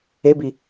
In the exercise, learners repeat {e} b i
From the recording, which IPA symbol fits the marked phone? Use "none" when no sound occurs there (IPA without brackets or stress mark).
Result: e